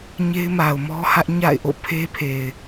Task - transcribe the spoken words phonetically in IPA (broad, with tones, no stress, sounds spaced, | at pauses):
ɲ e˦ ɪ̯ m a˨ ʊ̯ m ɔ˦ h ä˦ ʔ ɲ a̰˦˨ ɪ̯ ʔ o̰˦˨ pʰ e˦ pʰ e˨ ɪ̯